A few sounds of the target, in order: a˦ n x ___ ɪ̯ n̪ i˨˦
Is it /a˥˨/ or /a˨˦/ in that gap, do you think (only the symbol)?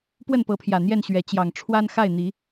a˥˨